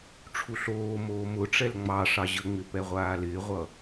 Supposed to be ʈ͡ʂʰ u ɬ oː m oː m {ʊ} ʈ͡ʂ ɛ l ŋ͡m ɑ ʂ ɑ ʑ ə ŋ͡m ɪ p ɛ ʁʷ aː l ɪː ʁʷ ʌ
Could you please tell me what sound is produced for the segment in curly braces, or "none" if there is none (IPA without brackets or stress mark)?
ʊ